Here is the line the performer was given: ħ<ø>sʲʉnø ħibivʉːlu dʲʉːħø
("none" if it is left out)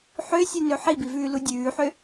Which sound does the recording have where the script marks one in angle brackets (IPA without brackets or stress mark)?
ø